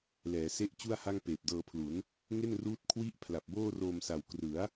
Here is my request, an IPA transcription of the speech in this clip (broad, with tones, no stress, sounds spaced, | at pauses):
l ɛː˩˦ s e˥˩ ʔ t͡ɕ u˥˩ a̯ h a˥˩ ŋ p eː˨˩ p̚ d ɤː˧ pʰ l u˩˦ n | ŋ e˥˩ n r uː˦˥ t̚ kʰ w i˦˥ ʔ pʰ l a˨˩ p̚ b oː˥˩ r oː˧ m s a˨˩ w k r ɯ˩˦ a̯